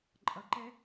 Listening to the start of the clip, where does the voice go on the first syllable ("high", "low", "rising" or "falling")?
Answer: low